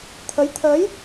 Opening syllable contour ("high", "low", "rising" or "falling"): rising